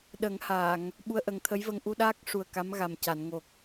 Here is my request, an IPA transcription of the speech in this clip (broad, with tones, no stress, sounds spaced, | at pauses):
ɗ ə˨˩˦ ŋ h aː˨˩˨ ŋ | ɓ u˧ ə̯ ʔ ə˨˩˦ ŋ t̪ʰ ə˧˥ j v ə˧ ŋ ʔ u˧ ɗ aː˦˥ k̚ ʂ u˨˩ ə̯ k a˧˥ m ɣ a˨˩ m c a˨˩˨ n ŋ o˨˩ k̚